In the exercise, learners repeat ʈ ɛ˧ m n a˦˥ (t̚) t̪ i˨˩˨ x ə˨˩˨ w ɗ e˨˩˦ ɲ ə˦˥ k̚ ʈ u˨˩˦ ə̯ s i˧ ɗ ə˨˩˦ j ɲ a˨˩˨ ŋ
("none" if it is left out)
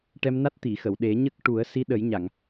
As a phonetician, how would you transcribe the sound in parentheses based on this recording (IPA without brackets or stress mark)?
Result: t̚